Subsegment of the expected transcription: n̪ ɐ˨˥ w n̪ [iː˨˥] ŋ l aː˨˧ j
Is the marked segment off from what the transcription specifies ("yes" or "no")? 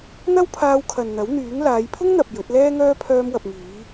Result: yes